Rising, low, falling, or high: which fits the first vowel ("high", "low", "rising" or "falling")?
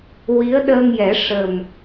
rising